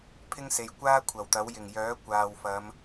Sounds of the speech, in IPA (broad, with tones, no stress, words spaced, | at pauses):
pʰɪ˥ŋse˨j kʷaː˥ kʷʰɐ˨˩wt̪ɐ˨˥w jɪ˨˩ŋjœː˨˥ kʷaː˨wfɐ˨˧m